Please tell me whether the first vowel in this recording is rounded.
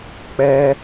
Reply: no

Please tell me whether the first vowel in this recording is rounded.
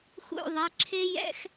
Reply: yes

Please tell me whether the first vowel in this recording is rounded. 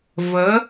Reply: no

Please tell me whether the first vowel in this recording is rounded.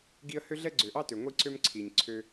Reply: no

